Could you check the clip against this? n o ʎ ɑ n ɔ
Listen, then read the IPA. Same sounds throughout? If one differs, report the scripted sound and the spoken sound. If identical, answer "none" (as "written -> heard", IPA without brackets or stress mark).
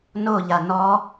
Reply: ɑ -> a